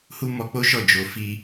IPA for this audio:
h u˦ m ɔ˧ k͡p o˦ ʃ ɔ˦˨ d͡ʒ o˧ f i˧

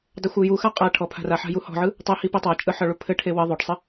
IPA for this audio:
dˤ ɘ xʷ ɘ j u x a qʼ a ʈʰ ɔ pʰ a̤ r a ħ a̤ j u h ɔ̤ ʕ ɯ | tˤ e h i p i tˤ a t͡ʃʼ ɯ ħ ɒ ɭ u pʰ ɘ ʈʰ e w ɘ ðˤ o ʈ sˤ ɘ

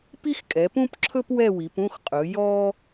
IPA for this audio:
p i˥ x kʼ ɛ˨˦ p ũ˥ p ǁʰ ɵ˥ p w ɛ˥˧ w i˨˦ p ũ˥˧ x qʼ ɵ˨˦ j ɔ˥

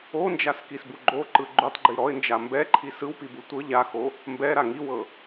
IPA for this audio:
o n d͡ʒ a s k i s b u ɡ͡ǃ o ǃ ɯ ɡ͡ǃ u tˤ ɡ͡ǃ i ɾ ɔ ɪ̯ n d͡ʒ a m b ɛ ǃʰ i s ɯ w p i b u tʷ ɤ ʎ a x o | m b ɛ ɾ a ŋ i w ɤ

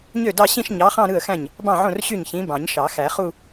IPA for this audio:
ɲ ø˥˩ d ɑ˥˧ ɕ ĩ˥˧ ʃ ɲ ɑ˨˥ χ ɑ̃˥˧ ɾ ɯ˥˩ ə̯ x æ̃˥˩ ɲ | b ɑ̃˥˩ ʕ õ˥˩ r ɕ y˥˩ ɲ ç ĩ˨˥ b ɑ̃˨˩˦ ɲ ʃ ɑ˨˩˦ x æ˨˩˦ χ u˥˧

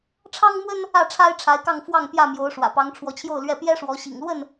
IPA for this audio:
ʈ͡ʂʰ ɑ˦ ŋ m w ə˦ n | ä˥˨ ʈ͡ʂʰ a˦ ɪ̯ ʈ͡ʂʰ a˨˦ ɪ̯ k ɑ˥˨ ŋ f w ɑ˥˨ ŋ p j ä˥˨ m j o˨˦ ʊ̯ ʂ w ä̰˨˩ p ɑ˨˦ ŋ ʈ͡ʂʰ w ɔ˨˦ t͡ɕʰ j o˥˨ ʊ̯ l ɥ ɛ˥˨ p j ɛ˦ ʂ w ɔ˨˦ ɕ ḭ˨˩ ŋ l w ə˥˨ n

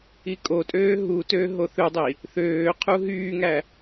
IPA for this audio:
i kʼ o tʼ øː ɦ u t øː ɦ o θ ø dˤ i | θ øː qʰ u ɦ yː ŋ æ

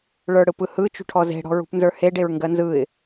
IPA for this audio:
ɭ ə˞ ɽ ɯ p ɯ h ɯ t͡ʃ ṳ ʈʰ ɔ z e̤ ɽ ɔ̤ ɹ ṳ p n z ə˞ h e ɖ e ɹ ŋ ɡ ɜ n z ɯ ɪ̯

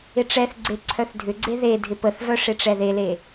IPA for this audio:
ɪ ʈ͡ʂ ɛ θ ɡ͡ǀ e ǀʰ œ θ dʱ ʏ ɡ͡ǀ e ð e dʱ ɪ p ə θ v œ ʂ ɪ ʈ͡ʂ ɛ ð e l e

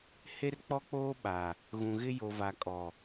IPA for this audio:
h e˦ r k͡p ɔ˦ k͡p oː˦ ɓ a˨ | ɣ ũ˨ ɣ ɪ˦ j o˨ v a˨ kʼ ɔ˨

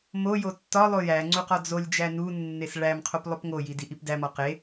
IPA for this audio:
m o j o tː ɒ lˠ o j æ ŋ͡ǀ u q ɒ d͡z o lʲ d͡ʒ æ n u nː e s ɭ æ m qʰ o p lˠ o p ŋ o j i d i ʔ i p d æ m ɒ q e

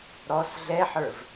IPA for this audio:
ɾ ɔ s ɮ ɛ ħ ə˞ v

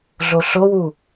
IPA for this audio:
ɮ o ɬ o w u

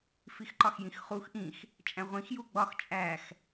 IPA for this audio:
f i x ǃ ɒ x j ĩ x χ u x ʔ ĩ x | t͡ʃʼ æ̃ ʁʷ ĩ x j u ɡ͡b ɒ x t͡ʃʼ æ x

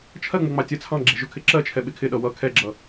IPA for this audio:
t͡ʃʰ ɜ ŋ͡m ʊ ŋ͡m ɑ tʲ ɜ t͡sʰ ɑ̃ ɡ͡ǁ ɛ̤ ʒ ʊ kʰ ɪ ǁ ɜ t͡ʃʰ ɛ ɓ ɪ kʰ ɪ ɗ ʌ w ʌ kʰ ɛ ɡ͡ǁ ʌ

